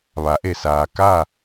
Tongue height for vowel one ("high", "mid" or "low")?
low